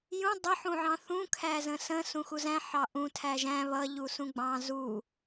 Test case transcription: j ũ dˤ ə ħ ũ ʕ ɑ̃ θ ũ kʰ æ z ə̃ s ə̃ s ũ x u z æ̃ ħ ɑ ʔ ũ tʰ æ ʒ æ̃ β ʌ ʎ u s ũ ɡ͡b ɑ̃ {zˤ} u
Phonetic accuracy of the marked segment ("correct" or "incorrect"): incorrect